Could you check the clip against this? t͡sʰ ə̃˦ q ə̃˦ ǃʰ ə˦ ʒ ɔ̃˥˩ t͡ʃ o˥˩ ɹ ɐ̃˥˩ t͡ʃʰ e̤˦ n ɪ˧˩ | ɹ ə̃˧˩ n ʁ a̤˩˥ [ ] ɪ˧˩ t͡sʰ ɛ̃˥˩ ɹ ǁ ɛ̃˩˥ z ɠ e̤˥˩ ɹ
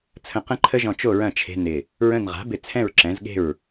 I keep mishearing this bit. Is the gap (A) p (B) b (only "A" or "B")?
B